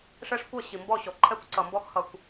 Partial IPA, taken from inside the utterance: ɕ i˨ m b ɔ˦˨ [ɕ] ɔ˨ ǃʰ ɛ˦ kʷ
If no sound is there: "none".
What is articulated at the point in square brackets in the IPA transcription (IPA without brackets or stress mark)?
ɕ